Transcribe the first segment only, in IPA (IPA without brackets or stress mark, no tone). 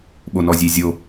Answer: ɓ